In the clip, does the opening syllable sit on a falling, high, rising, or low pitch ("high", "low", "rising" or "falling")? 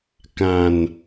low